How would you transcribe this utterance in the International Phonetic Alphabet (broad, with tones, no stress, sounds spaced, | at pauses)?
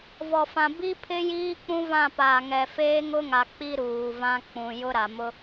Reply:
v ɔ˨ f ã˨ b i˦ pʰ ɪ˦ j iː˦ k͡p ũ˦ v ã˦˨ p aː˨ ŋ ɛ˨ f eː˦ ŋ ʊ˦ ŋ a˨ k͡p i˦ ɾ uː˨ v ã˦ k͡p ũ˨ j ʊ˦ ɾ a˨ m ʊ˦